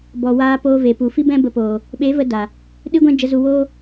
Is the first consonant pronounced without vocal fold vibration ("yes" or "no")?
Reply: no